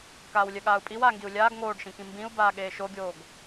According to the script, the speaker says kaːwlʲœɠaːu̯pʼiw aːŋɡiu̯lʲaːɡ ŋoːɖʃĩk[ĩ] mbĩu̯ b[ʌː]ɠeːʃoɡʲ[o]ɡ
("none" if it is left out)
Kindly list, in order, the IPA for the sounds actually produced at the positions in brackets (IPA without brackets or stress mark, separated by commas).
ĩ, aː, oː